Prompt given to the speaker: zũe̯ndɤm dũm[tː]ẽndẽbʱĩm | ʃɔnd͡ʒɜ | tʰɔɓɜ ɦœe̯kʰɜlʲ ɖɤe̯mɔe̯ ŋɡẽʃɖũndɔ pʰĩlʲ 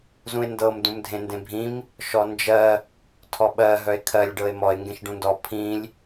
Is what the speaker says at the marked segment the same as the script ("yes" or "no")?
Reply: no